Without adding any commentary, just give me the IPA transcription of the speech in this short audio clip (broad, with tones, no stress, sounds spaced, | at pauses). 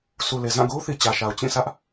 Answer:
sʰ u˨ l e˨ z ã˦˨ ɡ o˦ ʊ̯ θ i˨ t͡ɕ ä˨ ʃ a˨ ʊ̯ t͡ɕ ĩ˦˨ sʰ ä˦ ʔ